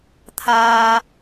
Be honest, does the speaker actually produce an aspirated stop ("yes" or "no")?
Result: yes